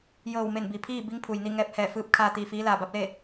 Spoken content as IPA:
jɤː˧˩wme˧˩n bi˩pʰiː˥˨ bi˧˥ŋpʰu˩jni˥˨ ŋɛː˧p̚hɛː˧˩fɯː˧˥p̚kʰaː˧ t̪iː˧˩fiː˧˥laː˧˩ ba˧˥p̚leː˥˨

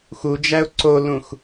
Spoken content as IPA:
xud͡ʒæʊ̯ ǀolũx

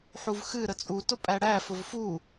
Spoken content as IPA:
ħuvxɨ ɾət͡sʼu tʊpʼæɽæ fʊvfu

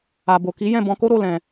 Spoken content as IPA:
a˨bo˨ki˨˦ jɛ̃˦˨bɔ̃˧ko˦ɾo˦˨ lɛ̃˨

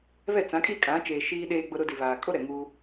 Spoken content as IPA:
βɛ˦˨ t͡sã˨˦kʼi˦kʼã˨˦t͡ʃeː˨ ʃiː˦ɗeː˦ɡ͡bʊ˦ ɾʊ˦ di˨βaː˨kʼo˦ ɾɛ˨ŋuː˦

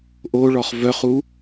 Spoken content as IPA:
ʔoɭɔχ vœχu

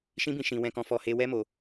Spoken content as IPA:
ʃĩ˧bĩ˨ ʃĩ˨ wɛ̃˨kɔ̃˨fɔ˨ he˨ wɛ˧mo˨

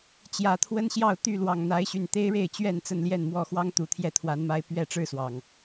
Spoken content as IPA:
t͡ɕjä˨˩t̪ʰwə˦n ɕjɑ˥˨ʊ̯t̪y˥˨lwɑ˨˩ŋ n̪a˨˦ɪ̯ɕy˨˩n t̪e˦ɪ̯ɻe˥˨ɪ̯t͡ɕɥɛ˥˨n t͡sə˥˨nljɛ˥˨nmwɔ˥˨ xwɑ˦ŋ t̪u˨˩t̪ʰjɛ˥˨t̪ʰwa˨˦nma˦ɪ̯ pɥɛ˥˨ʈ͡ʂɻ̩˥˨swɑ˩ŋ

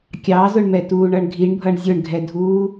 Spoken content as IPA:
kʲɑzʊɳmɛ tuːɳʌɳɡʱiɳbʱʌɳ zʲʊɳɡʱɛdʱuː

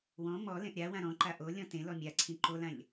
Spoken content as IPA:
wɔ̃ mɔ lẽʔɾʲawã ɾɔ̃ǃa ʔolʲɔ̃ tẽ lɔmʲaǀʰĩ ǃolãʎ

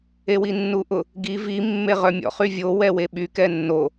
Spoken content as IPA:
ewinːuʔʊ | ɡi vi mːeʁœmʲɔ̰ χyvʲo wɛweɓy kɛnːo

